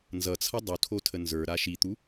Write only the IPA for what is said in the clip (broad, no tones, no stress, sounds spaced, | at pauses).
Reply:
n z ʌ t͡sʰ ʌ dˤ u tʰ o tʰ ə n z ə˞ ɾ a ʃ i t̪ u